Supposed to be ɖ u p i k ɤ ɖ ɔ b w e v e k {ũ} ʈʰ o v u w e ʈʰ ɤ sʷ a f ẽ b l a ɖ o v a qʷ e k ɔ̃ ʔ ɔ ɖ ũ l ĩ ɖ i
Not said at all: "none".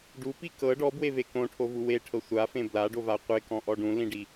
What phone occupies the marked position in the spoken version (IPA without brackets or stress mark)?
õ